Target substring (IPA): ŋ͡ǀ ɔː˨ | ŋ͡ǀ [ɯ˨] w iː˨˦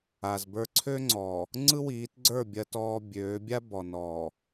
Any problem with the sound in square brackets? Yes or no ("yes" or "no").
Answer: yes